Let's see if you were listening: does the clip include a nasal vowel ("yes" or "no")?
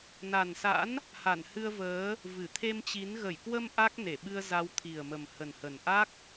no